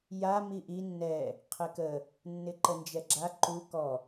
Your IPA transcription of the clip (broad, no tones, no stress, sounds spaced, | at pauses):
j a m i ʔ i nː ɛ | qʰ ɘ k ə | nː ɪ ǃ ə n d͡ʒ ɛ ɡ͡ǁ a ǃ u k ɔ